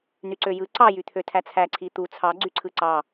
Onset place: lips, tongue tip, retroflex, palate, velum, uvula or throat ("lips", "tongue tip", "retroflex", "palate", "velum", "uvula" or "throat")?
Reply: tongue tip